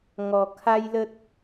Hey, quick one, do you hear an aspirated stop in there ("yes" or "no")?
yes